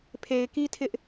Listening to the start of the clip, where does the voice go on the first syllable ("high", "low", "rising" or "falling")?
low